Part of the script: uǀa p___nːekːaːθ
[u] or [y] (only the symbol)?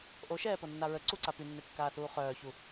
y